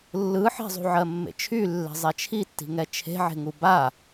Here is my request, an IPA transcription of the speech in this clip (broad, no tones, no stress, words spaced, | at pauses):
lːɯħe̤zˤṳʕɜ mːḛt͡ʃʰylːe̤ zˤɛt͡ʃʰitːi̤ŋɛ t͡ʃʰe̤ʕe̤ŋu ba